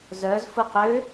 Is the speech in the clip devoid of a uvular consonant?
no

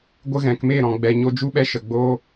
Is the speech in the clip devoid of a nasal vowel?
no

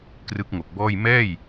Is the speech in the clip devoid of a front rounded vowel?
yes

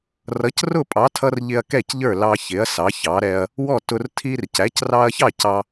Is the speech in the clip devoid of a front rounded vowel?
yes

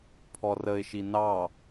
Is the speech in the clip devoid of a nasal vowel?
yes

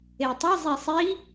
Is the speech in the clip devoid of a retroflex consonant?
yes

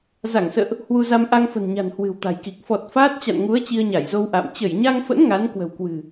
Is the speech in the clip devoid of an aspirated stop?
yes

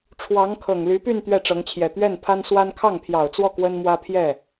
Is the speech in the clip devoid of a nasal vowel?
yes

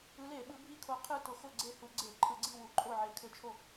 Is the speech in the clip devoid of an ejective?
no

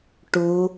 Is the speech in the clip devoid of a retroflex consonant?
no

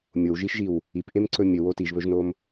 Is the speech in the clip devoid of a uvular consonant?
yes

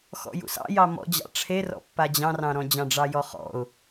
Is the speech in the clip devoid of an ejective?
yes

